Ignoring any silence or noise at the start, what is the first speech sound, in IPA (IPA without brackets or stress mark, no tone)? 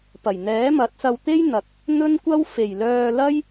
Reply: p